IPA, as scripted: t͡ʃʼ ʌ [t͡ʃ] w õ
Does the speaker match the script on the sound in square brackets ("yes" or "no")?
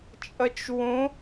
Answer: yes